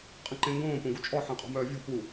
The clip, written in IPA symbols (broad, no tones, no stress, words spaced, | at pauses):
qʼə̃ǃẽŋɡõː põɡut͡ʃʼɔ ħẽqʼɔ̤mœːvʲɔ̤ pu